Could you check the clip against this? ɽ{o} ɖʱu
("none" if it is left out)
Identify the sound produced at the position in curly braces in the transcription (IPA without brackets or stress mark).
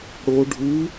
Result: o